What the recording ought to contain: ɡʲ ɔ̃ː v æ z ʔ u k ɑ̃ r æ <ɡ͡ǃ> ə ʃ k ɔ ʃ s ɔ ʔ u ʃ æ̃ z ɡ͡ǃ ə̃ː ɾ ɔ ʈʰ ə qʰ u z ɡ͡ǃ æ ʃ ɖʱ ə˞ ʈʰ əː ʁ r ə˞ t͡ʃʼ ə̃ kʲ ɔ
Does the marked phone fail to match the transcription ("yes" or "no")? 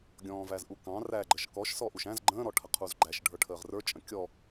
no